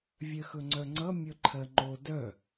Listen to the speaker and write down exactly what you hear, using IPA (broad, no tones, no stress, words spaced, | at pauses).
vʲɜxɵŋ͡ǀœŋ͡ǀʌ mʲʌǃʰɜŋ͡ǃo dœ